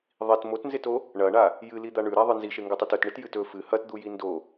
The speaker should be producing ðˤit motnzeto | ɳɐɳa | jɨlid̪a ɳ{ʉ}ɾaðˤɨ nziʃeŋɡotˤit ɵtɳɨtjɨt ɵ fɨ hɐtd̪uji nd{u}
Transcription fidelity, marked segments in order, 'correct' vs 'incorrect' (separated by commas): correct, incorrect